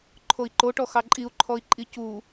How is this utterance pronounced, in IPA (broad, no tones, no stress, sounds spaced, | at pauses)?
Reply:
ǃʰ o i̯ ǃ o ʈ ɔ x ɑ ǃʼ i u̯ ǃʰ ɔ i̯ ǃʼ i c u